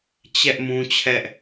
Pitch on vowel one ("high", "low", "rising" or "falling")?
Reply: high